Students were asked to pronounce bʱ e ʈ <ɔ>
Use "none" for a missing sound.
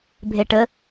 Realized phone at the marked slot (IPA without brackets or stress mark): ə